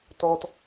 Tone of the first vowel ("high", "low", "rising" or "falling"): high